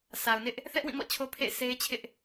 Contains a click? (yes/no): no